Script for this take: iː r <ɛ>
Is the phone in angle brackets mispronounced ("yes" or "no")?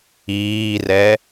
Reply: no